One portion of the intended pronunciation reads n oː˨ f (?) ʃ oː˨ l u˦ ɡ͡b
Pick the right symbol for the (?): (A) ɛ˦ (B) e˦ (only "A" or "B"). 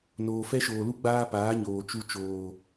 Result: A